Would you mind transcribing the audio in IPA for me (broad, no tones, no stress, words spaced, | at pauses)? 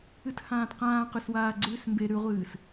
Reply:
ɨthãːtqãː qʉswaːɡ͡ǀʉːsmbe ɾʉʁʷɨːs